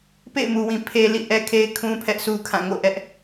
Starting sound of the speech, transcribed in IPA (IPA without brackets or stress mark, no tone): p